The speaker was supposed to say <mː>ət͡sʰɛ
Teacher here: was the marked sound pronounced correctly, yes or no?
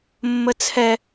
yes